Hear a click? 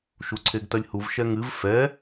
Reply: yes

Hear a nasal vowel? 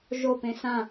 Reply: yes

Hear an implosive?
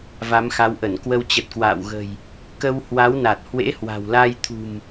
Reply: no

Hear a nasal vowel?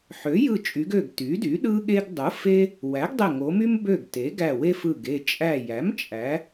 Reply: no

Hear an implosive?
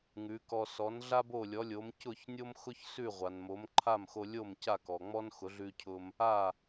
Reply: no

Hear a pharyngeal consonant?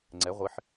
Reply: yes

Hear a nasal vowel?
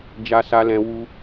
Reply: yes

